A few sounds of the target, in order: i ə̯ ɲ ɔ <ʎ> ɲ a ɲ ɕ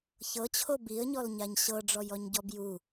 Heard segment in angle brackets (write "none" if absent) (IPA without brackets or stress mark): l